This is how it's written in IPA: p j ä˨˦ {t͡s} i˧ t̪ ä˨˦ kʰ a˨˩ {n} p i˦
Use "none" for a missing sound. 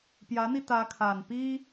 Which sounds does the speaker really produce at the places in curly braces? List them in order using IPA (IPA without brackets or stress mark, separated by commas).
n̪, n